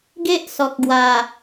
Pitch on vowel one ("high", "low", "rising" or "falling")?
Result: high